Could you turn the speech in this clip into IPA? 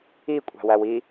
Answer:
i kʷʼ æ̤ w æ w i

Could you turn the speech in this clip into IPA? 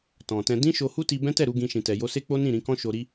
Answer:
t ɔ̃˨ t ɛ̃˧ d ĩ˦ ʃ o˧ h u˦ t i˧ b ɛ̃˦ t ɛ˦˨ ɾ u˨˦ ɡ ĩ˧ ʃ ĩ˨ t ɛ˨ j o˧ s e˦ k͡p o˦ n ĩ˦˨ ɾ ĩ˧ k ɔ̃˦ ʃ o˧ ɾ i˧

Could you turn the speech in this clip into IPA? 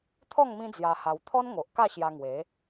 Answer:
t̪ʰ ɔ˥˧ ŋ m ĩ˦ d͡z j a˧ h a˧ w t̪ʰ ɔ˦ n ŋ o˨ ʔ k a˥˧ ɕ j a˧ ŋ w e˨˦

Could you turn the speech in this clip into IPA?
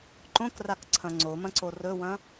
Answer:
ǃ õ k r a k ǀʰ ɐ̃ ŋ͡ǀ o m ɐ̃ ǀ o r ɵ w ɐ̃

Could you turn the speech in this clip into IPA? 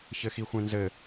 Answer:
ç ɘ x i xʷ ẽ n z ɘ

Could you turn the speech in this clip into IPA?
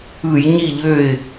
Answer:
ɯ˧˩˧ j ɲ i˥˨ ʎ ø˥˨ ɪ̯

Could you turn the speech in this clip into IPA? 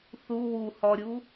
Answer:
θ u w u h ɔ ɾʲ u

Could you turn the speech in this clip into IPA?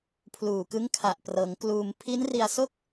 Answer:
pʰ l uː˨˩ k ɯ˦˥ ŋ kʰ a˨˩ ʔ p r ɤː˩˦ ŋ k l uː˧ m pʰ i˦˥ n r i˧ a̯ s o˥˩ k̚

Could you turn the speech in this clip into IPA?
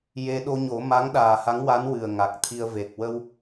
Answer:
j e˧ ɗ o˧ ɲ o˨˩˦ m a˧˥ ŋ ɗ aː˨˩ h a˧˥ ŋ w a˧˥ n w ɨ˨˩ ə̯ ŋ a˨˩ k̚ t̪ʰ i˧ ə̯ v e˨˩ k̚ w ə˧ w

